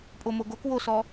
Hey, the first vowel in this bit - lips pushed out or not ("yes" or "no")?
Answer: yes